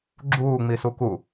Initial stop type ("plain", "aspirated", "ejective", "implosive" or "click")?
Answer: click